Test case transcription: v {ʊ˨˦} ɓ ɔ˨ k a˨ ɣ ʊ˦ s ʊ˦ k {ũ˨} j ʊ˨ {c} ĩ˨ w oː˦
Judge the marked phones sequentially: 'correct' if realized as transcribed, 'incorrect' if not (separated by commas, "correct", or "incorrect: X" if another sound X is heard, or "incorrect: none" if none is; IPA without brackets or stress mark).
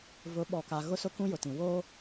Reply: correct, incorrect: ũ˦, incorrect: t